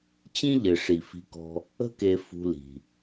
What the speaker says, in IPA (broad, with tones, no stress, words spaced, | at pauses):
t͡ɕĩ˦ʎɘ˩ ʂi˩fi̤˨kɔ̤˨ | ə̤˦ke˨ fṳ˨li̤˩